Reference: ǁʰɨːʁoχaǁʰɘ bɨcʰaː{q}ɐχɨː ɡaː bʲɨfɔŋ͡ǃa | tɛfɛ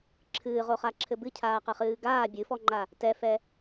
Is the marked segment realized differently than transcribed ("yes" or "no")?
no